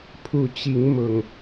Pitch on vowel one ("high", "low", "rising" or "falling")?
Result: low